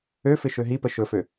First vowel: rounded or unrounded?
rounded